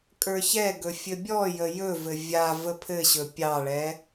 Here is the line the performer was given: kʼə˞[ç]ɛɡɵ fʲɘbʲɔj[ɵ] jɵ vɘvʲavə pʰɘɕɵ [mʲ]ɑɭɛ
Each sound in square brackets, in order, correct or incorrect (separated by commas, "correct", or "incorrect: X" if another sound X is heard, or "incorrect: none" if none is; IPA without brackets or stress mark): correct, incorrect: ə, incorrect: pʲ